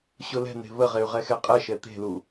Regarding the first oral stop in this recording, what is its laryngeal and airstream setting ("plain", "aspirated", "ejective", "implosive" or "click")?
ejective